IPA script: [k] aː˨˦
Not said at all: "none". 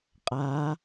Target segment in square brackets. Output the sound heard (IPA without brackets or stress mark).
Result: qʼ